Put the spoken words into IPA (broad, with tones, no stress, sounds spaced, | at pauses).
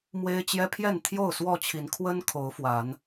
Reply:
m w e˦ ɪ̯ t͡ɕ j ɛ˦ pʰ j ɛ˥˨ n t̪ʰ j o˥˨ ʊ̯ s w ɔ˥˨ t͡ɕʰ i˨˦ n kʰ w ə˦ n kʰ o˨˦ ʊ̯ f w a˨˦ n